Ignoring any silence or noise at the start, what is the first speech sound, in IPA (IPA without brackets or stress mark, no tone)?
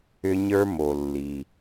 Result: ʏ